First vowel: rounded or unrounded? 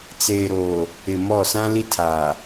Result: unrounded